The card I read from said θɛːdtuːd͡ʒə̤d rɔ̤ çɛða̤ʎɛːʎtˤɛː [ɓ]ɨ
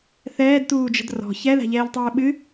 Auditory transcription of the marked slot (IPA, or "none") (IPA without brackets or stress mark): ɓ